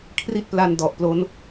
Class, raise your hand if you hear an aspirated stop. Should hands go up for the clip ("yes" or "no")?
yes